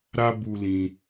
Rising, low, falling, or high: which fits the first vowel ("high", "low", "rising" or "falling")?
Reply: high